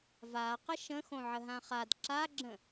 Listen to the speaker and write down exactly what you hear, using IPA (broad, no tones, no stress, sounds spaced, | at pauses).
v a q ə ʃ ə̃ x õ ʕ ə ɦ ã χ a d ǁ a ɡ͡ǁ ə̃